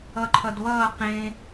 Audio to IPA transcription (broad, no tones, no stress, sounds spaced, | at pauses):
ʌ ǃʰ ʌ d β ʌː q ẽ